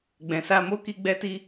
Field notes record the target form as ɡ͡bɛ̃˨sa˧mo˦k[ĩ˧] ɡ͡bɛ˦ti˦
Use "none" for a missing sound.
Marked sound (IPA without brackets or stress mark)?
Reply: i˧